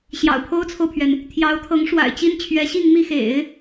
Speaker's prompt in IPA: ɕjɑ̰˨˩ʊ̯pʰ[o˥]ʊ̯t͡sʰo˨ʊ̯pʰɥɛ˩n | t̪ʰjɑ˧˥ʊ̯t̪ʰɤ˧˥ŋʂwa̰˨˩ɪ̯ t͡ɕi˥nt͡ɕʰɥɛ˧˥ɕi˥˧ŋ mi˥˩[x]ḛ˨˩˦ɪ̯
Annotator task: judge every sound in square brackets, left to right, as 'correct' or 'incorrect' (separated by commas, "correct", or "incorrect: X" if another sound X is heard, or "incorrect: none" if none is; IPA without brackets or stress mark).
correct, correct